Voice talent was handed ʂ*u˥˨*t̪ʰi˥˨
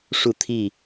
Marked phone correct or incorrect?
correct